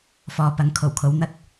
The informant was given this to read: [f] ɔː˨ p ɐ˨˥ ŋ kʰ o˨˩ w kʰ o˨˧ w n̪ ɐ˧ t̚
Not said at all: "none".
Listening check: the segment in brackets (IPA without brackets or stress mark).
f